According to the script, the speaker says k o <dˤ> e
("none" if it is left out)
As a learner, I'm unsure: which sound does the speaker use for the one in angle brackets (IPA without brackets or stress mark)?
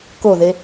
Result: ð